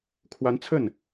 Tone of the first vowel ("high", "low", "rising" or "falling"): rising